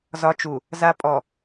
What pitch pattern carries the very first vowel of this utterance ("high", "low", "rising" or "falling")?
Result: low